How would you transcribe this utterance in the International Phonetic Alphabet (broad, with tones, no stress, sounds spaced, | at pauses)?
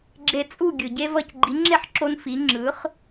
ɡ͡ǁ e˧ t͡sʼ u˥˩ ɡʲ ɯ˩ ɟ e˥ v ʌ˥˩ c ɡ͡ǃ i˩˥ ŋ͡ǁ e˥˩ ħ ǁ o˧ n f i˩˥ ŋ͡ǁ ɯ˩˥ χ